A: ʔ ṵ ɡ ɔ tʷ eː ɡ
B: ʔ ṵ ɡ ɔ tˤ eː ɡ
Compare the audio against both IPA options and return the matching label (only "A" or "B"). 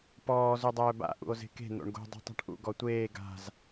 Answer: A